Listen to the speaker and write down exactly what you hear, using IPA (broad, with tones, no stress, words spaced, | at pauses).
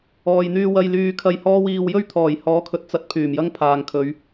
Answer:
ɔː˨jn̪yː˧ wɐ˧jlyː˧ kʰɐ˧jhɔː˥wiː˧w jɵ˥ɥt̪ʰɔː˨˩jhɔː˨˥kʰɵ˨˥t̚ t͡sɐ˧t̚ pʰyː˨˩mjɐ˥ŋ pʰaː˨ŋkʰɵ˨˧ɥ